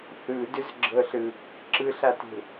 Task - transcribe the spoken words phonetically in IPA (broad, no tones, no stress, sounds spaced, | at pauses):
θ ɯ d ʏ z ɡ͡ǁ ɤ ɬ ɯ | ǁ ɯ ɬ a t e̤